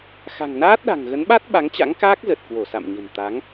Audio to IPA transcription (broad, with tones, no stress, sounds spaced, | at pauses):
x a̤˨˩ ŋ n aː˦˥ t̚ ɗ a̤˨˩ ŋ ɣ ə˨˦ n ɓ a˦˥ t̚ ɓ a˨˦ ŋ t͡ɕ a̰˧˥ ŋ k aː˦˥ k̚ z ə˨˩ t̚ k w o˧˩ s a̰˧˨ m ɲ ə̤˨˩ n t̪ a˨˦ ŋ